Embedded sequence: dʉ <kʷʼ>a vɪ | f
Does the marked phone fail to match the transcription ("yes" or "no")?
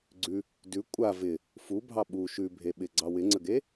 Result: no